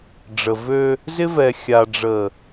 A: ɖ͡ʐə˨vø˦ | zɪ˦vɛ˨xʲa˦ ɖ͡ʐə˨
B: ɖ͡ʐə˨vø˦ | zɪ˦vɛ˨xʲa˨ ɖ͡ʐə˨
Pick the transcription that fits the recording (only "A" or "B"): B